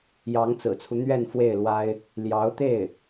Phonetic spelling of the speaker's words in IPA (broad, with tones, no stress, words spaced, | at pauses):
jɑ˧˥ŋt͡sɹ̩˨˩t͡sʰu˦ n̪ɥɛ˥˧nfwe˥˩ɪ̯lwa˥ɪ̯ | ljɑ˧˥ʊ̯t̪e˥˩ɪ̯